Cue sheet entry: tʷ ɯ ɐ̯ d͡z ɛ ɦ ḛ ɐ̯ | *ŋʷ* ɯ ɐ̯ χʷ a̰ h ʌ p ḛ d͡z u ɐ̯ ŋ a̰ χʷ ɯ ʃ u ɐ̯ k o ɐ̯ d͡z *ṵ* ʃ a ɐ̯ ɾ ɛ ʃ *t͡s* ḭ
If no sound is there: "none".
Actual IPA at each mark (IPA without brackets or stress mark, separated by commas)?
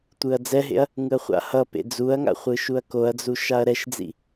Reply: ŋ, u, d͡z